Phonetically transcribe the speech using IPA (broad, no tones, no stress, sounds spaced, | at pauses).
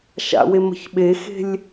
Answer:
ʃ a̰ w e m ə̤ ç ɓ e x e̤ lʲ